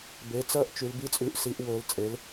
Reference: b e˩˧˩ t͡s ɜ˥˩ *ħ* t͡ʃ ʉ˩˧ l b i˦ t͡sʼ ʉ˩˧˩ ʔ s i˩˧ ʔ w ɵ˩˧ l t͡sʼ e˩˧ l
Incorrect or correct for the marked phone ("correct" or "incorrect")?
incorrect